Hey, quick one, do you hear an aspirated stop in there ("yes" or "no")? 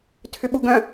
yes